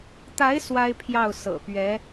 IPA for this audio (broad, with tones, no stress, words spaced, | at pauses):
t̪a˧˥ɪ̯ swa˥ɪ̯pʰjɑ˥˩ʊ̯ sɤ̰˨˩ pɥɛ˧˥